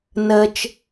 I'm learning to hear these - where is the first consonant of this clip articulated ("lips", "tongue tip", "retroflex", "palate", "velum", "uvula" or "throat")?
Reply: tongue tip